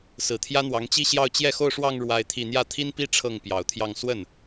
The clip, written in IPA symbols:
sɹ̩˨˩t̪ʰjä˥n̪wɑ˧˥ŋ t͡ɕi˥˧ɕjɑ˥˧ʊ̯ t͡ɕjɛ˥˧xo˥˧ʊ̯ʂwɑ˥˧ŋ ɻwa˥˧ɪ̯t̪ʰi˥˧ n̪jä˥˩t̪ʰi˥npi˥ ʈ͡ʂʰɤ˥˩ŋpjɑ˨˩ʊ̯t̪ʰjɑ˥˧ŋ swə˥˩n

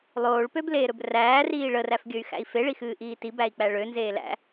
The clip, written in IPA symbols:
lˠoːɭpøbleːɾɵb ræːriː ɭəræfɡʲɵy̯xæ̰i̯ feɭixɨːʔiː tibæi̯k͡pæ ɭønzeː læ̰

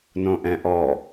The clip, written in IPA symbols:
nõʔɛ̃ʔɔ

